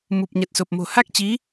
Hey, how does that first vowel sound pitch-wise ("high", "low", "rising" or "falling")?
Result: low